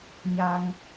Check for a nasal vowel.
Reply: absent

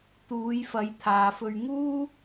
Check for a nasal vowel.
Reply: absent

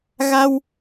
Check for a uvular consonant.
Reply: absent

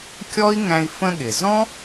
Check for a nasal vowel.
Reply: present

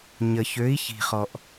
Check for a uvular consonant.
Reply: present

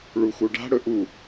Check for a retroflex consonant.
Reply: present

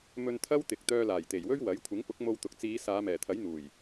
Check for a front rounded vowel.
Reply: present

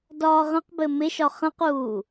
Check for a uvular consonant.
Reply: present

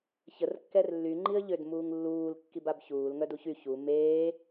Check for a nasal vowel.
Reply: absent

